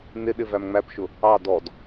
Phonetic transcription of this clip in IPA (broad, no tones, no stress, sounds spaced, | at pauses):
n ɪ ɗ ɪ v æ m ŋ͡m æ p ʃ ʊ | ɑ d ɔ d